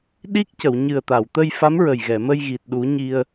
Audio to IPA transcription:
ɗ i˦˥ k̚ c ə˨˩˨ w ɲ ɨ˨˩ ə̯ t̪ a˨˩˨ w t̪ ə˧ j f a˧˥ m ɹ ə˨˩ j ɣ ɛ˨˩˨ m ə˧ j ɣ i˨˩ t̚ ɗ u˨˩˦ ɲ i˧ ə̯

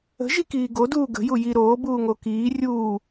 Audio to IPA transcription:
ə̤ ʒ i k iː ɡ o d uː ɡ ə̤ j u j i ɾ oː b uː ŋ o k iː rʲ uː

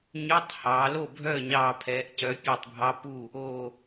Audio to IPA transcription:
ɲ ø˧˥˧ tˤ h ɑ˩˧ l o˥˩ bʱ œ˥˩ ɲ ɑː˧˩ pʰ ɛː˩˧ ʔ c œ˩˧ pʲ e˧˩ tˤ bʱ ɑ˧˥˧ p u˥˩ | o˧˩

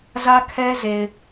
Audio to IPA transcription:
z ä˦ kʰ ɛ˦ z e˨ ɪ̯

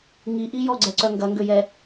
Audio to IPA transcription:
ŋ i ʔ i j ɔ ɡ͡ǀ ɛ ǀ œ ŋ ɡ ɐ ŋ ɡ ø j ɛ

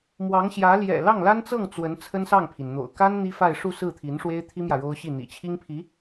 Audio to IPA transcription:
m w ɑ˧˥ ŋ ɕ j ä˧˥ l j ɛ̰˨˩ l ɑ˥˩ ŋ l a˥ n t͡s ɤ˥˩ ŋ t͡s w ə˧˥ n t͡sʰ ə˥ n s ɑ˥˩ ŋ pʰ i˩ n n̪ o̰˨˩ ʊ̯ k a˥ n n̪ i˥ f a˥˧ ɪ̯ ʂ u˥˧ s ɹ̩˥˩ t̪ʰ i˧˥ n ʂ w e˥ ɪ̯ t̪ʰ i˥ m j ä˨ ɻ o˥ ʊ̯ ɕ i˥˩ n̪ ḭ˨˩ t͡ɕʰ i˥ ŋ pʰ i˧˥

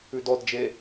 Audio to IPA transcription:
ʉ d ɔ d d͡ʒ e

